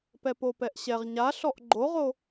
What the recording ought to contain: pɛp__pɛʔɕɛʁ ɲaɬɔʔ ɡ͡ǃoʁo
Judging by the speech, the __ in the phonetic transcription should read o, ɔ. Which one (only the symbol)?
o